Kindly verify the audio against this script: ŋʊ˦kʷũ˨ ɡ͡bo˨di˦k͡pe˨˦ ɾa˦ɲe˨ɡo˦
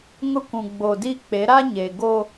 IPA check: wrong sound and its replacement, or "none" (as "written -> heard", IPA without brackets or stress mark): none